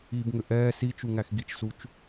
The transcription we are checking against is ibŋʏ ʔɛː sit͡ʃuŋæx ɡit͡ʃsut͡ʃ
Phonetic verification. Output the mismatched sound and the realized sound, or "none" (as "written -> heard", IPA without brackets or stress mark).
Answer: none